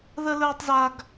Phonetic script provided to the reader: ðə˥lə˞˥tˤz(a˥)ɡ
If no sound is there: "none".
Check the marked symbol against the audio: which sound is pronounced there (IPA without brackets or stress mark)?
a˥